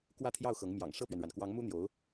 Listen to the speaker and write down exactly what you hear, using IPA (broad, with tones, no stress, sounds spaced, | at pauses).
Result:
k w ä˥˧ t̪ʰ j ɑ˥˩ ʊ̯ x ɤ˧˥ ŋ m j ɑ̰˨˩ ŋ ʂ ɤ˥˩ p ɥ ɛ˩ n ɻ a˩ n k w ɑ˧˥ ŋ m u˥ n̪ j o˧˥ ʊ̯